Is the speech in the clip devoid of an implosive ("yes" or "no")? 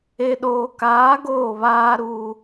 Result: no